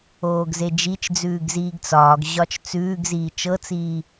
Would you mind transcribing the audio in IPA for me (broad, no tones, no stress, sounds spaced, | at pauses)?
oː ɡ z e d͡ʒ i t͡ʃ d͡z ʉː ɡ z iː ɡ t͡s ɒː ɡ ʑ ɒ t͡ʃ t͡s ʉː ɡ z iː t͡ʃ ɤ t͡s iː